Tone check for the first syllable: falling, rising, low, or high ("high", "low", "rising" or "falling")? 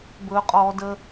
high